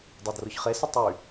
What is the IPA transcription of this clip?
dˤ a d r ʊ ç χ e s ə tˤ y

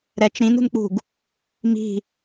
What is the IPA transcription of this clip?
ɾ ɛ t͡ʃ ɾ ĩ n ṳ n k͡p ṳ ɡ | m i̤

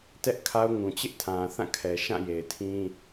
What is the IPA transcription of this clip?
t ɛ˦ ʔ kʰ a˦ ʊ̯ ŋ ũ˨ t͡ɕ ɪ˦ ʔ tʰ ã˨ θ ã˦˨ kʰ ɛ˨ ʃ ã˦˨ j e˨ ɪ̯ tʰ ĩ˦

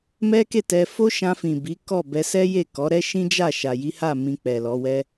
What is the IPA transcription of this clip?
m ɛ˦ k e˦˨ t ɛ˧ f o˦ ʃ ã˧ f ĩ˨ b i˨˦ k ɔ˦˨ b ɛ˧ s ɛ˦ j e˦˨ k ɔ˨˦ ɾ ɛ˦ ʃ ĩ˦ d͡ʒ a˦˨ ʃ a˨ j i˨˦ h a˦˨ m ĩ˧ k͡p ɛ˨ l ɔ˨˦ w ɛ˦

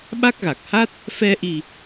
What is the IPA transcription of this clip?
ɓ a˦˥ k̚ ɣ a˨˩ k̚ h a˦˥ t̚ | f ɛ˧ ʔ i˨˩

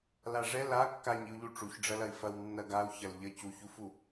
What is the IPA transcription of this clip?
l a ʐ ɛ l a kː a ɲ i u̯ ʎ u ʈ͡ʂ u ç ɖ͡ʐ ɐ l ɐ i̯ f ɐ w nː ɐ ɡ a u̯ ç ɐ l ʎ ə c u ç u f u

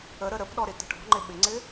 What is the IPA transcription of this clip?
ə ɾ ə ɾ ə p ɗ ɔ ɾ ɪ t ə̤ ʈ ɔ̤ ŋ͡ǃ ɪ ɓ ɪ ŋ͡ǀ ɪ

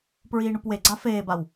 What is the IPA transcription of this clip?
p ɹ iː ɳ u p w e ɡ͡ǀ a f eː b a w

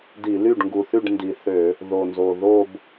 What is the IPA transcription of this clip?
d i˧˩˧ l y˥˩ ɖ ŋ ɡ u˨˩ θ y˥˩ ɖ n d i˨˩ θ ø˧˩˧ | ð o˨˩ n z o˨˩ ð o˥˧ b

